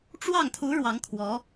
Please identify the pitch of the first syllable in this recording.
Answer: falling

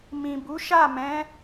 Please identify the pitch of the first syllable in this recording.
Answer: low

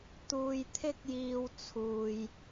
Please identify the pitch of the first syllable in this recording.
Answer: low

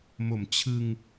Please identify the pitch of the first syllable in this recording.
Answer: low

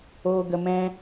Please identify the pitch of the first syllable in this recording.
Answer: low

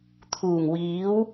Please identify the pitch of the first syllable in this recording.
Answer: low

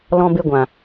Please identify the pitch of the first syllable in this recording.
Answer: high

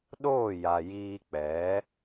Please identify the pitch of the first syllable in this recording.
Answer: falling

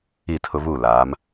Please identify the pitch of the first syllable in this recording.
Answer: falling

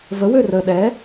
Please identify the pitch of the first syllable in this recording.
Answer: rising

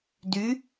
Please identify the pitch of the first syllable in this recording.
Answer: rising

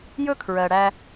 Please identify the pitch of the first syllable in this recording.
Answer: high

